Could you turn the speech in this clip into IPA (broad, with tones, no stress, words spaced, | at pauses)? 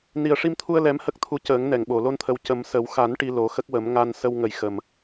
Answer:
ni˨˩ə̯ʂi˧mt̪ʰu˧ə̯ lɛ˧˥mhə˦˥k̚t̪ʰu˧˥ cəː˨˩˦ŋnɛ˨˩˨ŋɓo˨˩˨ lo˧nt̪ʰə˨˩w cə˨˩˦msə˨˩˦w xa˨˩˦n ʈi˧lo˨˩˦xə˦˥k̚wə˨˩˦m ŋa˧n sə˧wŋə˨˩j xə˨˩m